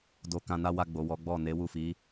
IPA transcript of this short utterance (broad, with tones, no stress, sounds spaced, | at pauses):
d o˧ k ã˧ n a˦ w a˧ ɡ͡b o˨ w ɔ˨˦ ɡ͡b ɔ˦˨ n e˨˦ w u˦˨ f i˨˦